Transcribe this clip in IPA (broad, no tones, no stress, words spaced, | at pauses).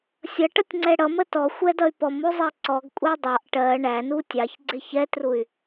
sʲʌʈʌtʲŋ͡ǀɛ ɽʌmə tɔxʷɛdʌy̯ pɔmuzˤɛ ǀɔɡkʷʼɛ dˤɑʔ ʈɜ ɳænu tʲɑçɡ͡ǀɪ çɛtruy̯